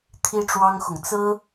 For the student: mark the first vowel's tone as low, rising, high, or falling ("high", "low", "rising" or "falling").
high